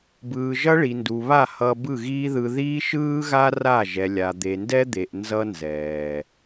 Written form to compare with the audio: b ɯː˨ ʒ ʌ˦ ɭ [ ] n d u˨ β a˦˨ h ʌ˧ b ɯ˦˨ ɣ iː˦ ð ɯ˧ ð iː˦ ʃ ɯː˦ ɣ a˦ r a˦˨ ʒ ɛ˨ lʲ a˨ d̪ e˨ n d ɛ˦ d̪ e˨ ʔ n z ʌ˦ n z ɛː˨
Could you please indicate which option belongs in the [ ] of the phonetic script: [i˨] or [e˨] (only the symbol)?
i˨